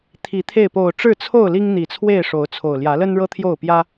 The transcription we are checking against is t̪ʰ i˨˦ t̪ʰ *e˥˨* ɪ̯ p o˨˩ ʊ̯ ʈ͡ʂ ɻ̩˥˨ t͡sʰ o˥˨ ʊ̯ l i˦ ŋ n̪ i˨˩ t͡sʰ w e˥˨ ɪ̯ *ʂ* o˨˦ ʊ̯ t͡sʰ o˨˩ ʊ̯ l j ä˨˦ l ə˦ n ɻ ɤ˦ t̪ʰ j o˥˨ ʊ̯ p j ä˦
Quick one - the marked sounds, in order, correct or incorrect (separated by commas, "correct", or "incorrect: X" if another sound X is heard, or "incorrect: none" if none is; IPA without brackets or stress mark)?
correct, correct